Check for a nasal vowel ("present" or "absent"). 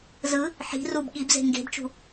absent